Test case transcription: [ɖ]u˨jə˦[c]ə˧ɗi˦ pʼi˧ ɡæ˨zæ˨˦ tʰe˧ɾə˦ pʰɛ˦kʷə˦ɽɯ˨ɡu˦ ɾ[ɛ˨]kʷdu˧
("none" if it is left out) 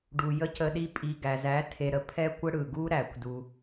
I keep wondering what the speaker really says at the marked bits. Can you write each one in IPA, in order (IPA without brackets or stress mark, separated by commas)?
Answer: ɖ, c, æ˨